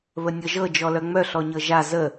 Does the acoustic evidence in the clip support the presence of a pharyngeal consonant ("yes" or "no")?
no